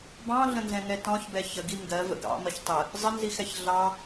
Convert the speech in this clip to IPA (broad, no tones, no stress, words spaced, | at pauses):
bɑ̃ɮə̃nzɛ̃ŋɛ tɔ̃çbɛ çəɡi ŋɡɜvə̰ ɡɑ̰mʌç tˤə | zˤənzixɛç ɮɑ